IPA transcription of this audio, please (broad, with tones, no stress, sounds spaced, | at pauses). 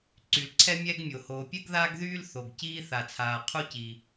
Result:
ǀ y˩ l ǀʰ ɛ˥ mʲ ɛ˥ ɡ mʲ o˩ h oː˩ pʲ ɛ˥ ɡ ð aː˥ ɡ ð yː˥ l θ o˩ ɡ c iː˥ θ a˩ t͡sʰ aː˩ qʰ u˥ c i˩